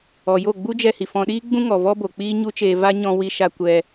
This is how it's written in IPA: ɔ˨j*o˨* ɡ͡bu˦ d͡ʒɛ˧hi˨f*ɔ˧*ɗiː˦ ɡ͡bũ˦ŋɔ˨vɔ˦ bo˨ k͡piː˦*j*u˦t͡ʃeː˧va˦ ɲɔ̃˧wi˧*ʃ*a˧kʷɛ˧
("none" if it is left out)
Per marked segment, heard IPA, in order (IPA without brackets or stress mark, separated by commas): o˦˨, ɔ̃˧, ɲ, ʃ